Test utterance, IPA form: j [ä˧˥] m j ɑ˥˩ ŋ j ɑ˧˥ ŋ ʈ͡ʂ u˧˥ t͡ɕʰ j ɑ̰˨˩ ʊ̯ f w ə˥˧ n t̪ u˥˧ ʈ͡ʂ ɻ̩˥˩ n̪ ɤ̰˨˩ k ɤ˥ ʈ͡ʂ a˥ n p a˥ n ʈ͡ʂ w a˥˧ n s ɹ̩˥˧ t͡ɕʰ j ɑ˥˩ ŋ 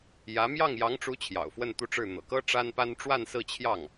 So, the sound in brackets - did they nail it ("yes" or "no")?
yes